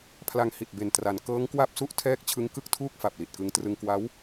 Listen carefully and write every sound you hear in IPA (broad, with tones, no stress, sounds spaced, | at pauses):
pʰ l a˧ ŋ h i˨˩ t̚ b e˨˩ n t r a˩˦ n k ɤː˦˥ ŋ k w a˥˩ p̚ s u˥˩ ʔ tʰ ɛː˥˩ k̚ t͡ɕʰ ɯ˦˥ ŋ k ɯ˥˩ k̚ tʰ uː˥˩ k̚ f a˨˩ p̚ l i˨˩ t̚ k ɯ˧ ŋ t r ɯ˧ ŋ k w a˦˥ w